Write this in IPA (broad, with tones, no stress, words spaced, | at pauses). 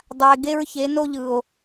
dˤa˨e̯ɡe˦ɹ çe˨˦no˦ʎɯ˨o̯